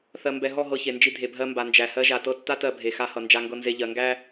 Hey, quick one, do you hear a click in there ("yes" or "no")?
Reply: no